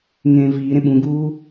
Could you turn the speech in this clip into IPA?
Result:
ŋ ẽː v iː ɾ ẽ ɓ ũ ɡ uː

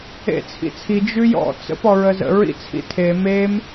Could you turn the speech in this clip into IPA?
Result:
ḛ t͡sʰ ḭ t͡sʰ i d͡ʒ ʉ j ɔ̰ t͡s ə̰ p ɔ ɹ ə z ə̰ ɹ ḭ t͡sʰ ḭ tʰ e m e m

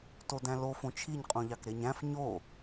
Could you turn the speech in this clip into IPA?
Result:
t o d æ̃ l o f õ t͡ʃʰ i ɲ qʼ ũ ʎ ɑ k ɾ e ɲ æ̃ f ɲ o

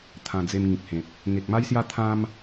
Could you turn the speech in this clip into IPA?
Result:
t̪ʰ ã˧ d͡z e˧ m ŋ ĩ˨ k̚ h ẽ˨ p̚ | ŋ e˨ k̚ m a˦ j s j a˦ t̪ʰ ã˦ m

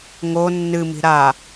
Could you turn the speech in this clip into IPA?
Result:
ŋ o nː ɨ m i̤ ɾ a

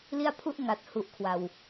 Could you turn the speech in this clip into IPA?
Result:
l i˦˥ a̯ pʰ u˥˩ ʔ ŋ a˨˩ t̚ h u˨˩ ʔ kʰ w a˨˩ w

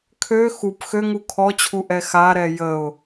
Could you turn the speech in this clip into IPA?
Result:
kʰ ø x u p x ø ŋ u kʰ ɔ t͡ɕʰ u ʔ ɛ x a ɾ ɛ j ə ʊ̯

